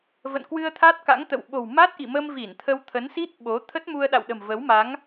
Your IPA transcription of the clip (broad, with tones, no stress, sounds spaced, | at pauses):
v ə̰˧˨ n k w ɨ˧ ə̯ t̪ʰ a˦˥ t̚ k a̰˧˥ ŋ t̪ ə̰˧˨ w ɓ o̤˨˩ w m a˦˥ t̚ ʔ ḭ˧˨ m ə˧ m v i˧˩ n t̪ʰ ə˧ w t̪ʰ ə˨˦ n s i˦˥ t̚ ɓ o˨˦ t̪ʰ ə˦˥ t̚ m u˧ ə̯ ɗ a̰˧˨ w ɗ ə̤˨˩ m v ə˨˦ w m a˨˦ ŋ